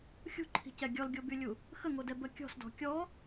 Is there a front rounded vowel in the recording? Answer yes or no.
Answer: yes